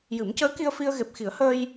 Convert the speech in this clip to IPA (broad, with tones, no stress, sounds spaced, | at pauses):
j ɨ˨˩˦ m c əː˧˥ k i˧ ə̯ f i˧ ə̯ ɣ e˨˩ p̚ x i˨˩˦ ə̯ h əː˧ j